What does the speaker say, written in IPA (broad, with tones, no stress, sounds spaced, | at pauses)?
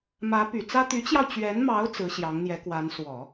m ä˧˥ p y˨˩ t͡s ä˥ t̪ y˧˥ t͡ɕ j ɑ˧ ʊ̯ t͡ɕ ɥ ɛ˧˥ n m ɑ˧˥ ʊ̯ t͡s ɹ̩˧˥ ɕ j ɑ˧˥ ŋ n̪ j ɛ˧˥ k w a˧˥ n s w ɔ˨˩˦